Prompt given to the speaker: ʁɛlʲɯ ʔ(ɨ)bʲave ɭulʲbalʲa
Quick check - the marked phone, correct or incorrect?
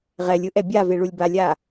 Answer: incorrect